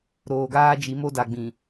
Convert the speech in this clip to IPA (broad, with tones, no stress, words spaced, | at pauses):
ɾoː˨ɡaː˦d͡ʒi˨˦ mo˦da˨ɡ͡bĩ˨